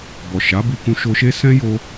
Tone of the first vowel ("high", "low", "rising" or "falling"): low